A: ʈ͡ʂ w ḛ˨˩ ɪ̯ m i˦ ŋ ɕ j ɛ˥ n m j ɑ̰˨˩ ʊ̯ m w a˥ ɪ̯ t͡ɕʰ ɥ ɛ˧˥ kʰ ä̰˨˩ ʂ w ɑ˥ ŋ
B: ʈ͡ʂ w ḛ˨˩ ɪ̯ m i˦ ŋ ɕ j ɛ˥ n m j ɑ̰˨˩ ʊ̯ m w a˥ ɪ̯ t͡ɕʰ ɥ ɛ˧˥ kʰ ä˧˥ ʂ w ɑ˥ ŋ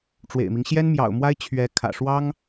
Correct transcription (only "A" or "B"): A